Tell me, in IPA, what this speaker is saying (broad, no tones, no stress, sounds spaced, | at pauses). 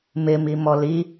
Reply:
m ɪ m i m ɔ l i